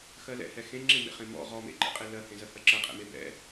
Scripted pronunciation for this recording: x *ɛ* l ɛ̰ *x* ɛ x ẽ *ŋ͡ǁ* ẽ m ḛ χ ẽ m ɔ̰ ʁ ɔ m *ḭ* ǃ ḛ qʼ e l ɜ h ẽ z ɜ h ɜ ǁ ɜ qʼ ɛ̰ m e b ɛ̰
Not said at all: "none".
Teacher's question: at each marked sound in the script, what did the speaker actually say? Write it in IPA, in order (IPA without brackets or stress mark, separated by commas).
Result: ɜ, h, ŋ͡ǁ, ḛ